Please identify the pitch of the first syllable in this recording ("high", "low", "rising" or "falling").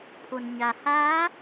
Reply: low